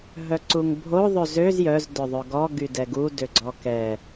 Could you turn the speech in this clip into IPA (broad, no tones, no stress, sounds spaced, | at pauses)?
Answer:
ɦ œ ǀ u ŋ bʱ o ðˤ ø z ø z j œ z d œ ðˤ œ ɡ ɔ ɡ y d ɛ ɡ u d ø ɡ͡ǀ ɔ k ɛ